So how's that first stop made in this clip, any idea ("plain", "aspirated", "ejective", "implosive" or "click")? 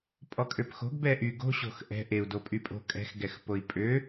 ejective